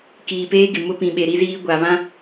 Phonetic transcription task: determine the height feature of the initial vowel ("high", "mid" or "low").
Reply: high